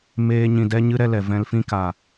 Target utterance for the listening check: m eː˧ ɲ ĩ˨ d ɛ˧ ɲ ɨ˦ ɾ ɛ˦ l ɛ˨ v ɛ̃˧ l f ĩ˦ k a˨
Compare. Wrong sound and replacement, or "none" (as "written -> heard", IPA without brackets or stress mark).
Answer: none